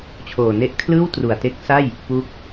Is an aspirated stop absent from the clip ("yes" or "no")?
no